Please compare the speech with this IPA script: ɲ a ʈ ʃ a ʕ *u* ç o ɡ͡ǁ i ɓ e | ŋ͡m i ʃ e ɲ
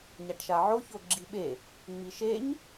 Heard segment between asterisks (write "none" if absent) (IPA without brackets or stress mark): o